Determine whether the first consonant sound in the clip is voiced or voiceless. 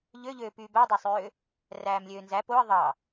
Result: voiced